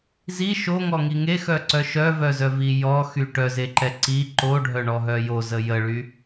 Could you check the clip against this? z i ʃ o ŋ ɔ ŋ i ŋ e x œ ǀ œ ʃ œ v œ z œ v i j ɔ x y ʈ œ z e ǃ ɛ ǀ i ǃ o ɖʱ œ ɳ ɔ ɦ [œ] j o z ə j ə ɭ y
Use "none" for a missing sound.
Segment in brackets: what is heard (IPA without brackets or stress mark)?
œ